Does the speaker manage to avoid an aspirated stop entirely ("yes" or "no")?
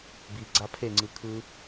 no